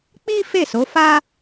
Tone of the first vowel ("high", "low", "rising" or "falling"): high